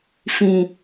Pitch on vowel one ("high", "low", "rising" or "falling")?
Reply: low